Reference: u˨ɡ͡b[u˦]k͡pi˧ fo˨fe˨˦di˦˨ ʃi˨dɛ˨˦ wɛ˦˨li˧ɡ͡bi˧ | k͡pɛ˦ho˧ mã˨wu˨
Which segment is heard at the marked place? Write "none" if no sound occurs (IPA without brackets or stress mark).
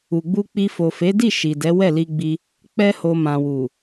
u˧